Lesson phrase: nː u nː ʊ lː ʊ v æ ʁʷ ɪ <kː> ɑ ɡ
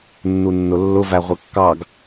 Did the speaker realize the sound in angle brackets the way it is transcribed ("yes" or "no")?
yes